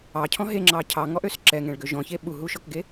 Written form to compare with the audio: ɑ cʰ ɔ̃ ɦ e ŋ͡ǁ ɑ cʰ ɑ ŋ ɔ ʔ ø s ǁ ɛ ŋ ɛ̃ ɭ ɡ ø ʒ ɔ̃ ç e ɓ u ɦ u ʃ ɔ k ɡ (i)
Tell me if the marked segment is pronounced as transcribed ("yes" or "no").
no